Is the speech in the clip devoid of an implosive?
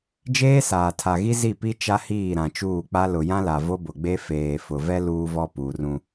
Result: yes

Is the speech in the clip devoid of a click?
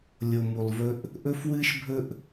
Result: yes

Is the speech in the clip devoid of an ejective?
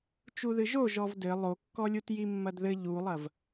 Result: yes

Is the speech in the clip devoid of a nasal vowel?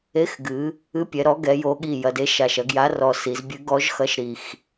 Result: yes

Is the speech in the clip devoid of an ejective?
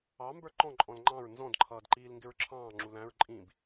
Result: no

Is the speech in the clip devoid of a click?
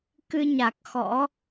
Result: yes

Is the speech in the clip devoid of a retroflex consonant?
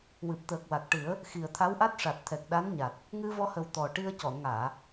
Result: no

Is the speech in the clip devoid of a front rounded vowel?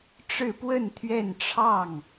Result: yes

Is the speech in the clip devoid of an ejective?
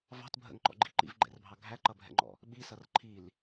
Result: yes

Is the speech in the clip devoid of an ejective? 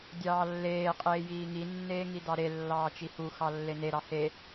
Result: no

